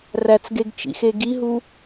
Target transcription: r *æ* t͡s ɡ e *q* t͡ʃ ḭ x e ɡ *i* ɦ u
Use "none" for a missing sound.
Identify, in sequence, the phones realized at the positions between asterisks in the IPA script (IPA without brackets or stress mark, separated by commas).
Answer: æ, ɡ, i